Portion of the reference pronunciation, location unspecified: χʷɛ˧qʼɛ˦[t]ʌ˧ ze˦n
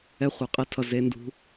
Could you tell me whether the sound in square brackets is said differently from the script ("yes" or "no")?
yes